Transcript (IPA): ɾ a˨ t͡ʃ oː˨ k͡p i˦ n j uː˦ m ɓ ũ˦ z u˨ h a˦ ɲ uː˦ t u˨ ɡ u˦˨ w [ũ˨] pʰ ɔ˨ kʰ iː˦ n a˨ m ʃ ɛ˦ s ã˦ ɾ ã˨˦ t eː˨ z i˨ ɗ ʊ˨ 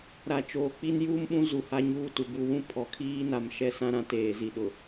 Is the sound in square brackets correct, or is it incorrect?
incorrect